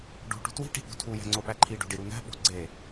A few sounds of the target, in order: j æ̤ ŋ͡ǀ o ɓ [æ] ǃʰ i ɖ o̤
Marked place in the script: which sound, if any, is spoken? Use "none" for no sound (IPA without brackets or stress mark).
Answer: æ